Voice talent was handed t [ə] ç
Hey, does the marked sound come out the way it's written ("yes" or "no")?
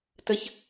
yes